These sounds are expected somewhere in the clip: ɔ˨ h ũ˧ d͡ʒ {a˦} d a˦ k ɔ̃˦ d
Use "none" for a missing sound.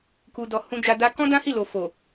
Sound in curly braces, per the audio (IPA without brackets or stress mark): a˧